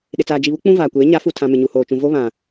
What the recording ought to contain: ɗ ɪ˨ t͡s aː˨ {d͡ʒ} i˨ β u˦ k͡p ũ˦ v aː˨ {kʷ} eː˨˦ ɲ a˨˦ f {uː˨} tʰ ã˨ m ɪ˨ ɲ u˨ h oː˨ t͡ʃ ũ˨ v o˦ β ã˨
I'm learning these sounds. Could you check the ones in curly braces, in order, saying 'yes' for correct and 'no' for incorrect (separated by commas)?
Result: yes, yes, no